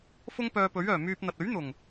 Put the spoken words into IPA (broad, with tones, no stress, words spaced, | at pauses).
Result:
fʊ˧ŋ pœː˧pɵ˨˥ɥœː˨˩ myː˧p̚n̪ɐ˨t̚ ɵ˨˥ɥn̪ʊ˨˩ŋ